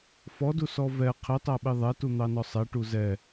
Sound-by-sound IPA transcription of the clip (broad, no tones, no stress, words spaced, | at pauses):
fɔdusɔ vɛ qʰitˤæɓi ðˤɛtun̪ɑnɔ sˤɛʈu zɛ